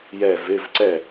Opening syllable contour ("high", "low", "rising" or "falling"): falling